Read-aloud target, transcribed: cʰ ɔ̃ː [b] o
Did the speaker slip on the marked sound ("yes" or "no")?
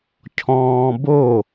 no